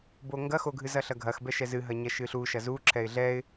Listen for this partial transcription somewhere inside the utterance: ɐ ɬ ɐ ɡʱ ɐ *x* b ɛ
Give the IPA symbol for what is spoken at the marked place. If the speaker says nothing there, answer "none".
x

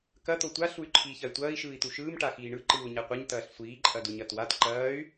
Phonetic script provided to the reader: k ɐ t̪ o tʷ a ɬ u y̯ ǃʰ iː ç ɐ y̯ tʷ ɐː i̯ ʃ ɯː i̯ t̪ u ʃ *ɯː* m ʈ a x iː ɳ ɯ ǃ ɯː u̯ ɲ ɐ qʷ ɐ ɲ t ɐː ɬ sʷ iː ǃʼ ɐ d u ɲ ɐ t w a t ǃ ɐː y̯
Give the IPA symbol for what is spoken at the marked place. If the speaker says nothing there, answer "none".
ɯː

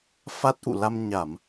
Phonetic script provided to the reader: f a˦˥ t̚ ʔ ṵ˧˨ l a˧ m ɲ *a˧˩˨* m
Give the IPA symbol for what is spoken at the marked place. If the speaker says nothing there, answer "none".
a˧˩˨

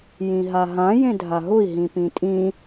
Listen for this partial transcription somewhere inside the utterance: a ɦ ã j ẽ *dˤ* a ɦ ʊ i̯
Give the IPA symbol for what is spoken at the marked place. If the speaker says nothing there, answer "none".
dʱ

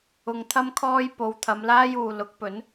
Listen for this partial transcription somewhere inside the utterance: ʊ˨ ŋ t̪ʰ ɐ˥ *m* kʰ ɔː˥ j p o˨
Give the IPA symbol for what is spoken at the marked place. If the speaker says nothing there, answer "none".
m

